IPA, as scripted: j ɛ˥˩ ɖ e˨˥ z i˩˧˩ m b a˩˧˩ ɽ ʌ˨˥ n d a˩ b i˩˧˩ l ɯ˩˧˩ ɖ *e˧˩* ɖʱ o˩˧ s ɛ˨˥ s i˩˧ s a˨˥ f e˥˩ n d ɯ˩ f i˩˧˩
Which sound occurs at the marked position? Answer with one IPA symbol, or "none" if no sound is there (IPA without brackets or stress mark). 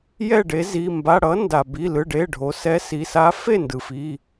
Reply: e˩˧˩